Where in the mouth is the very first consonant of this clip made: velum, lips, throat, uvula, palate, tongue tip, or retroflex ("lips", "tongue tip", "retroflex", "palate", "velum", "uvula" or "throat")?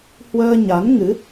throat